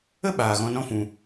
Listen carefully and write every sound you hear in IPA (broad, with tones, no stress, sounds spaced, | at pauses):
ə˦ ɓ aː˨ ɣ ɔ̃˧ n ɔ̃˦ f ũ˧